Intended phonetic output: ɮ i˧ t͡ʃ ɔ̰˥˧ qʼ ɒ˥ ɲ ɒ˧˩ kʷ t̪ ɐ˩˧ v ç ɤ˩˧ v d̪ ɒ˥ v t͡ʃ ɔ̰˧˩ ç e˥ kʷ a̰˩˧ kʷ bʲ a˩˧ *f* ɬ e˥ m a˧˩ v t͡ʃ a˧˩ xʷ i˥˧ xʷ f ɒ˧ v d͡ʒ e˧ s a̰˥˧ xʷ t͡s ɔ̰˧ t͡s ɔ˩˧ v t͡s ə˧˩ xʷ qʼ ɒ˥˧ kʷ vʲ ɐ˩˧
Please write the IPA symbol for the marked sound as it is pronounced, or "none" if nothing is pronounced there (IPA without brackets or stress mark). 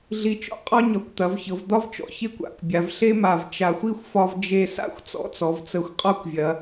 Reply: v